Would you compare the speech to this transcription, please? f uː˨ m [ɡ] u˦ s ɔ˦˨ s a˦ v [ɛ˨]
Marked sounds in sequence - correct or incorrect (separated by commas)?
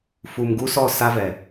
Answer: correct, correct